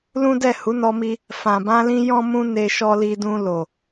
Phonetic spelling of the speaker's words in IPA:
lũ˦dɛ˦˨ hu˨˦nɔ˧mi˧ | fã˨bã˧lĩ˧ jɔ̃˦mũ˦ ne˧ʃɔ˧li˧dũ˧ lo˨

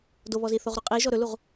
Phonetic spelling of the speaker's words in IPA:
doβɔzi θoʁɾoqʼiʒɔ ɾɵluʁ

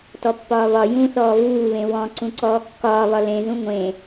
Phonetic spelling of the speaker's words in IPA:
tɔpːɒːβɒ jũθɔː βuːβẽ wɔ̃ ǀũǀɔːkːɒːβɒ lẽzũ ŋʷẽ

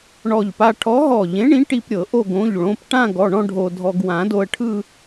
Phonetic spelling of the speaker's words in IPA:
ɳɔ˧˩ʎpa˧ ʈʰɔ˨˥ɦɔ˧˩ʎẽ˨˥ ɳĩ˨˥ ʈi˧p ɾʲɤ˨˩˦ʔo˥˧ ɡõ˩˧˩ʎɭõ˩˧˩p ʈã˥˧ɡɔ˩˧˩ɳɔ̃˥˧ ɖʱo˧dʱɔ˧ɡ wã˨˩˦do˧ə̯ʈʰɯ˥˧

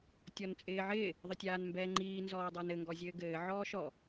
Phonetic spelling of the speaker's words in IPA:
tʲɔnt͡sʼɪːʕɪː | ðˤətʲaːnmbɛːŋ͡ǃiː nzɔːdˤə˞nɘ ŋɡɔzʲɘːɡɘː ʕɔːʃɔ

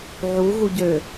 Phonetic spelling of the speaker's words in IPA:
ʕu ɣuɟø

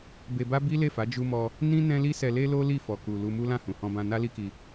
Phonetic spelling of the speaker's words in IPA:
be˧ba˦ bi˦ le˦˨fa˨˦ d͡ʒu˧mɔ˧ | nĩ˦ nɛ̃˦li˦sɛ˧ le˦lo˦li˦˨ fɔ˨ku˨ lu˧mu˦ lã˦˨hũ˨hɔ̃˧bã˧ na˦li˦ki˧

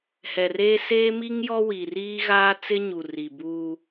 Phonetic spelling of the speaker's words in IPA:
hɛ˨reː˦ seː˦mi˦ŋ jɔ˦wi˨riː˦ ɣaː˦t͡sɪ˦ɲu˨ ri˨buː˦

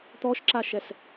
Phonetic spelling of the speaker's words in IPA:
t̪ɔʃǁaʃɛs

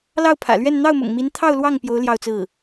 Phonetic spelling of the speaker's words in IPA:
lɑ˥˩ʊ̯pʰä̰˨˩lɥɛ˥˧n n̪ɑ˥˩ʊ̯mʊ̰˨˩ŋmi˧˥n t̪ʰɑ˥˧ʊ̯lwɑ˥˩ŋ pjo˧˥ʊ̯ ljɑ˥˧ʊ̯t͡sɹ̩˥˩

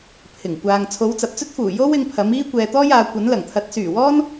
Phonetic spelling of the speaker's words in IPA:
pʰɪ˨˩ŋkʷaː˨ŋ t͡sʰo˨˧wt͡sɐ˨p̚t͡sɵ˥t̚fuː˨˩ jo˥wɪ˧ŋ pʰɐ˨˥m iː˥kʷɛː˧t̪ɔː˥jaː˨˧ kʷɐ˨˥nlɐ˨˩ŋt̪ʰɐ˨˥t̚ syː˨˩wɔː˥n

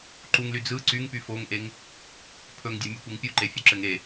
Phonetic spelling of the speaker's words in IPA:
ǃuŋly d͡zɯ ǀyŋpy foŋʔeŋ | pʰɵŋdʲɘmʲɯkʷeŋ pʲuǃefʲɵǁɘŋ e

